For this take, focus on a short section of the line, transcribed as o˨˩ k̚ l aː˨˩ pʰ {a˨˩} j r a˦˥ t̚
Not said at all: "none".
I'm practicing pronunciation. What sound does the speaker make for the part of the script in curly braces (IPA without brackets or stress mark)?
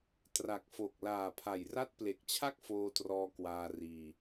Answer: a˨˩